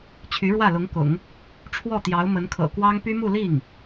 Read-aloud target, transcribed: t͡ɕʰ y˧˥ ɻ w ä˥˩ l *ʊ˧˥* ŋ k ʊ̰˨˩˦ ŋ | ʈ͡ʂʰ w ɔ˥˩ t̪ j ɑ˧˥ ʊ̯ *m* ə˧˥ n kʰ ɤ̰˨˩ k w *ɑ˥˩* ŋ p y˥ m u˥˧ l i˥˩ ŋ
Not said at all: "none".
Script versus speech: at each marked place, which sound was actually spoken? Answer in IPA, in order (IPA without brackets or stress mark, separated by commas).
ʊ˧˥, m, ɑ˥